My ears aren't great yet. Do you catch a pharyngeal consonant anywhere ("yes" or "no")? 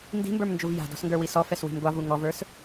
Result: no